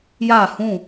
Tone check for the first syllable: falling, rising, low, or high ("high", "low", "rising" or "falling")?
falling